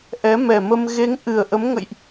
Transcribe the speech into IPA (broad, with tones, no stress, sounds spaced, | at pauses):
ʔ ɛ˨˦ m ɛ˨˩ m ə˧ m ɣ e˨˦ ŋ ʔ ɨ˨˩ ə̯ ʔ ə˨˦ m ŋ ə̰˧˨ j ʔ